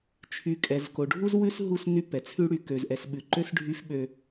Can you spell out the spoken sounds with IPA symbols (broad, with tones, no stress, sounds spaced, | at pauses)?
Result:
t͡ʃʰ y˨ kʼ ɛ˨ z k o˨ ɖʱ u˦ z w ʉ˦ s ɦ u˦˨ s n y˦ p ɛ˨ t͡sʰ ʉ˦ ɽ y˨ k ø˨ z ʔ ɛ˨ s ɓ ʉ˨ ǃ ø˦ s ɖʱ y˦ f ɓ ø˦